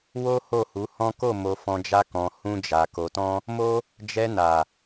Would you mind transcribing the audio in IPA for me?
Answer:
w o˦ h o˦˨ h u˨˦ h ɔ̃˦ k o˦˨ m o˧ f ɔ̃˧ d͡ʒ a˦ k ɔ̃˧ h ũ˦ d͡ʒ a˧ k o˧ t ɔ̃˦ | m o˦ | d͡ʒ ɛ˧ n a˨

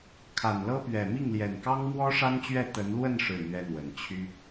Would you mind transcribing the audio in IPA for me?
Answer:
kʰ a˨˩ n l ɤ˥ p ɥ ɛ˨˩ m i˥˩ ŋ l j ɛ˨˩ n k ɑ˥ ŋ m w ɔ˥ ʂ a˥ n t͡ɕ ɥ ɛ˥˩ t̪ ə˧˥ n l w ə˥˧ n ʂ ɻ̩˥˩ n̪ ɥ ɛ˥ n̪ w ə˨˩ n t͡ɕʰ y˥

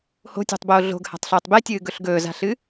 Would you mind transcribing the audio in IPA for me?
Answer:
h o̤ tʲ o̤ tˤ b oː ɮ o̤ ɡ h a̤ tˤ ɬ ɵː tˤ b e tʲ ɨː ɡ ɵ ɬ ɡ ɵː z a̤ ɬ ɨ

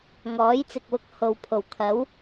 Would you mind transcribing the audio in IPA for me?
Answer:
ŋ ɔː˨˥ j t͡s ɪ˨ k̚ w ʊ˧ k̚ h o˨ w pʰ o˨˩ w kʰ ɐ˨˥ w

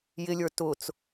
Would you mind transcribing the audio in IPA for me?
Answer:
j ɪ lʲ ə˞ t ʊ t͡s

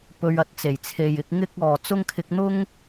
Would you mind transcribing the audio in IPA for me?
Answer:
p ɵ˧ ɥ ɐ˧ t̚ t͡s e˨˩ j t͡sʰ e˨ j ɪ˨˥ k̚ ŋ ɪ˥ k̚ ɔː˨ t͡s ʊ˥ ŋ kʰ ɪ˧ k̚ n̪ ʊ˥ ŋ

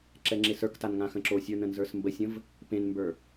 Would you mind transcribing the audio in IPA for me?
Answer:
ǁ ɛ ŋ͡ǁ e s ə˞ k t a n ŋ ã x ə̃ ǁ o sʲ ə˞ n ə̃ n z ə˞ s m b ə sʲ ə̃ v | p ẽ n m b ə˞

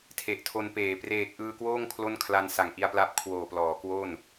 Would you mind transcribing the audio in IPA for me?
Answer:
tʰ e˨˩ ʔ tʰ o˧ n p eː˨˩ p r eː˨˩ k̚ ʔ ɯː˧ k w oː˥˩ ŋ kʰ l o˥˩ n kʰ l a˧ n s a˨˩ ŋ ʔ i˧ a̯ p l a˦˥ p̚ kʰ w oː˨˩ p l ɔː˩˦ k w o˥˩ n

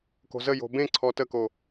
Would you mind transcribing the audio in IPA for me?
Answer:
k o̤ z ə j o̤ b ẽ ǀʰ ɔ t ə k o

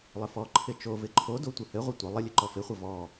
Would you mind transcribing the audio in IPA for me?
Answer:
lˠ ɘ f ɔ ǃʰ ɪ t͡ʃ o v ɪ ǃʰ o d o tʷ ɘ h ɘ ʁʷ œ tʷ ə lˠ ə lʲ ɘ ǃ ɔ f ɪ χʷ ə v ɔ

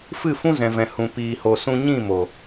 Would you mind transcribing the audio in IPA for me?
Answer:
f ɨ˦˨ f ũ˦ z ɛ̃˨ v ɛ̃˨ h ũ˨ p iː˨ h o˨ s ũ˧ ɲ ĩ˦˨ m o˨

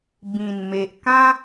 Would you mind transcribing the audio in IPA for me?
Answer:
b ĩ˨˩ n m e˨ ʔ k ã˦

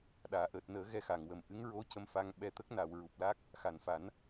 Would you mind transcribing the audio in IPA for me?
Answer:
ɗ aː˨˩˨ ʔ əː˨˩ t̚ n əː˨˩˦ ɣ ɛ˧ x a˨˩˨ ŋ w ə˨˩ m ʔ ɨ˧˥ ŋ ɹ o˧˥ c ə˧ m f a˧ ŋ ɓ ɛ˧ t̪ ə˦˥ k̚ n a˨˩˨ w ɹ u˨˩ p̚ l a˦˥ k̚ | x a˨˩ n f a˨˩˦ n

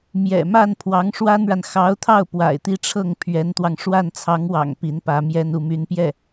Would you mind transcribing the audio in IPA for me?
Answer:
m j ɛ̰˨˩ m a˥˩ n pʰ w ɑ˧˥ ŋ ʂ w a˥ n ɻ a˨ n x ɑ˧˥ ʊ̯ t̪ʰ ɑ˥˩ ʊ̯ p w a̰˨˩ ɪ̯ t̪ i˥˧ ʈ͡ʂʰ ɤ˥˩ ŋ pʰ ɥ ɛ˧˥ n t̪ w ɑ˧ ŋ ʂ w a˥˩ n t͡sʰ ɑ˧˥ ŋ w ɑ̰˨˩ ŋ p i˧˥ n p ä˧˥ m j ɛ˥ n u˥˩ m y˧˥ n p j ɛ˥˩

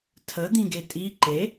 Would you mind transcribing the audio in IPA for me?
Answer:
tʰ ə d̪ ĩ ɡ e tʼ i ǃ e

